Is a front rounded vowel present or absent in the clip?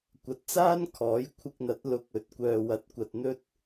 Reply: present